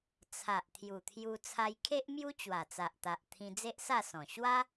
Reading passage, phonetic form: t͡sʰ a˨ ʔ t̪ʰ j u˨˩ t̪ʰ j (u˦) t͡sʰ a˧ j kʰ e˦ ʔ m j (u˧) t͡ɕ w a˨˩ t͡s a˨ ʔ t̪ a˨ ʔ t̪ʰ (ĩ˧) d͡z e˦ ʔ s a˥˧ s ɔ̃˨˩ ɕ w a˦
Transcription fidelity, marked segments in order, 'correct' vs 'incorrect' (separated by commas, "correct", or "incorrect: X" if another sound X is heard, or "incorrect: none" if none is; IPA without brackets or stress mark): incorrect: u˧, incorrect: u˦, correct